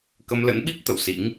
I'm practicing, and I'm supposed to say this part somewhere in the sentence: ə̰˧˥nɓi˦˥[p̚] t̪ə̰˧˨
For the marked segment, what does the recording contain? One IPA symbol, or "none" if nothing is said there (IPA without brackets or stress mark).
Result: p̚